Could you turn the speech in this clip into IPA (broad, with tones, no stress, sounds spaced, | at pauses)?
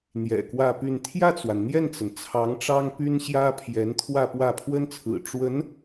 n̪ j ɛ̰˨˩ k w ä˥˧ p y˥˧ n t̪ʰ j ä˥˩ t͡s w a˩ n n̪ j ɛ˥˩ n t͡s ə˩ n t͡sʰ ɑ˧˥ ŋ ʈ͡ʂ ɑ˥ ŋ p y˥ n ɕ j ä˥ pʰ j ɛ˧˥ n t̪ʰ w ä˥˧ p w ä˥˩ pʰ w ə˥ n t͡sʰ ɹ̩˨˩ ʈ͡ʂ w ə˧˥ n